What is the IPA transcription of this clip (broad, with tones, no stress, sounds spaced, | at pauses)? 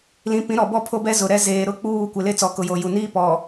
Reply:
l ĩ˨ p ĩ˨˦ ɾ ɔ˨ b ɔ˦˨ pʰ o˦ b ɛ˦ z ʊ˨ ɾ ɛ˦ z eː˨ ɾ ʊ˦˨ k͡p uː˦˨ kʷ e˨ l e˦ t͡s ɔ˨ k ʊ˨ j o˨ j u˨ n iː˦ p ɔ˨